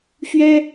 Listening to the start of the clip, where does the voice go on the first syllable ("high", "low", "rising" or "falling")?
high